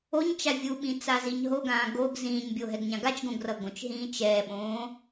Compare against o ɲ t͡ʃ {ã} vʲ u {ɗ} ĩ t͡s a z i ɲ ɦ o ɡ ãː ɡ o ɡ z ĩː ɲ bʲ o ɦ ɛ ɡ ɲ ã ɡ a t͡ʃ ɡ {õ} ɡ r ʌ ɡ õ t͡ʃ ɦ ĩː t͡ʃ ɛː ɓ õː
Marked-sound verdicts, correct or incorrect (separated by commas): incorrect, incorrect, correct